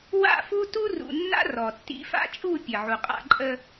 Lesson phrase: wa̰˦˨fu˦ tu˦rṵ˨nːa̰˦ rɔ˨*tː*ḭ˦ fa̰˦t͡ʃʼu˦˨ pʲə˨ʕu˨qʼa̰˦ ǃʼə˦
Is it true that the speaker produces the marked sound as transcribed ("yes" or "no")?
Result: yes